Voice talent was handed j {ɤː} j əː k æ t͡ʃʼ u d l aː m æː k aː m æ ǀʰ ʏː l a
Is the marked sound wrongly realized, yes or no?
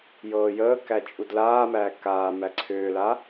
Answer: no